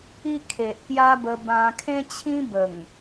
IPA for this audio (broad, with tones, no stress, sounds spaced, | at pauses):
i˦ kʰ e˨ ʔ k j a˦ b ə˧ b ã˧ kʰ ẽ˦ t͡ɕʰ ĩ˦ b ə˨˩ ŋ